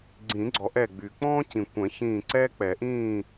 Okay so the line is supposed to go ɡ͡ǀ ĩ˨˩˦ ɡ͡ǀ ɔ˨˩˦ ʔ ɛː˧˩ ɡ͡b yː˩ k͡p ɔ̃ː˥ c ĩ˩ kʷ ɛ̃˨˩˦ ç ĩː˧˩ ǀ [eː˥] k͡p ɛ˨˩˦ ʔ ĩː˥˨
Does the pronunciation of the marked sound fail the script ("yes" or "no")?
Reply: yes